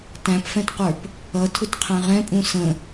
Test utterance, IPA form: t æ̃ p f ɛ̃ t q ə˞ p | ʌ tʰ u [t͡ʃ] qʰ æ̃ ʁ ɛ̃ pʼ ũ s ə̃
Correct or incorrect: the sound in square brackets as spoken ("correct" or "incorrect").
incorrect